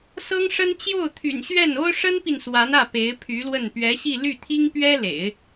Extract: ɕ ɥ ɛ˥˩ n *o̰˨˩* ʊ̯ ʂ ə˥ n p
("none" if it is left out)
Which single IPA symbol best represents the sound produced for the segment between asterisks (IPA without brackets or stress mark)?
o˥